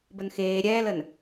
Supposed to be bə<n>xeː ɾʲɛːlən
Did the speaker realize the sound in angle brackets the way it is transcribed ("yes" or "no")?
yes